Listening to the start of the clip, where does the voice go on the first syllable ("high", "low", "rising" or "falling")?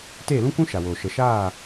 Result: falling